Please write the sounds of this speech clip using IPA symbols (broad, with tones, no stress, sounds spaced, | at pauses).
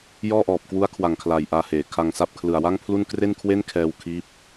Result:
j ɔː˥˩ ʔ ɔː˨˩ p̚ k w u˦˥ a̯ kʰ w a˨˩ ŋ kʰ l aː˨˩ j ʔ aː˧ h eː˩˦ kʰ a˧ ŋ s a˥˩ p̚ kʰ l ɯ˨˩ a̯ w a˥˩ ŋ pʰ l u˥˩ n k r e˥˩ n kʰ w e˥˩ n kʰ ɛː˧ w kʰ iː˦˥ p̚